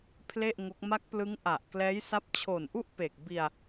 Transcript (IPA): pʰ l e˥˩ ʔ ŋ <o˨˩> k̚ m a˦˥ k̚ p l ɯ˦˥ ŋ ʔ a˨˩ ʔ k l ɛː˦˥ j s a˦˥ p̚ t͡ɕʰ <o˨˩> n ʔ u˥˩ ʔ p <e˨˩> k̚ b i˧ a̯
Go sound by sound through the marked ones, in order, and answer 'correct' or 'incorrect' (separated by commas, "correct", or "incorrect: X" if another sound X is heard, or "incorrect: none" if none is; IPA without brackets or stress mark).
incorrect: o˦˥, correct, correct